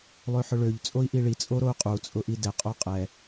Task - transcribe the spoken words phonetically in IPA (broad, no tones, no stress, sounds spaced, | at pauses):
lˠ ø ħ ʊ ɭ ø ʎ t͡sʼ o i̯ ʔ i ɭ i t͡sʼ o ɾ o u̯ qʼ u t͡sʼ ʊ ʔ i d ɛ qʼ o qʼ ɛ